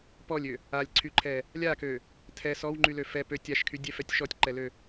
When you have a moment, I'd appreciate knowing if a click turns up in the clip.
yes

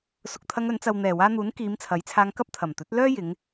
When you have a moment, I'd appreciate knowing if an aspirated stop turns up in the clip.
yes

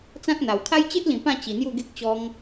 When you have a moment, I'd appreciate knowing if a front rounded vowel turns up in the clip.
no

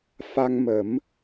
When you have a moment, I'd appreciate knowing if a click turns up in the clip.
no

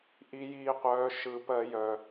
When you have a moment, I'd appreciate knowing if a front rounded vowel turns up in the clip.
yes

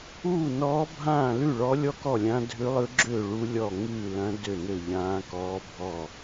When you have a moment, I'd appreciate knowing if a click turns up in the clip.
yes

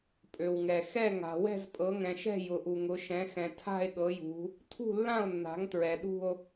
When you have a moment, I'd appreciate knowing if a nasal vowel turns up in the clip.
yes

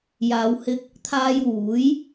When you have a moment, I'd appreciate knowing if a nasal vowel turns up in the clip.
no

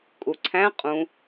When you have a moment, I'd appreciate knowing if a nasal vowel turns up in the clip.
yes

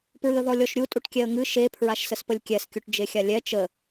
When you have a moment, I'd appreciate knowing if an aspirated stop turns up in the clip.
yes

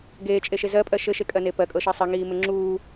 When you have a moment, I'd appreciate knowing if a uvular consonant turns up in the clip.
no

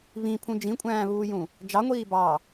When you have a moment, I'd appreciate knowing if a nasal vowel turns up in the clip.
yes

